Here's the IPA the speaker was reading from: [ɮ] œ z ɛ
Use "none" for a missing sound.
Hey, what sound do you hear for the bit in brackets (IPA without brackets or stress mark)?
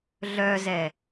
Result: ɮ